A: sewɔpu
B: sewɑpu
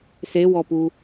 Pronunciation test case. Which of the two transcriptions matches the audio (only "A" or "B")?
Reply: A